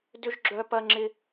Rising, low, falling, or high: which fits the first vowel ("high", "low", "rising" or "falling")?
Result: high